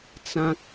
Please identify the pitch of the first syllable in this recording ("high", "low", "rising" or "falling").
high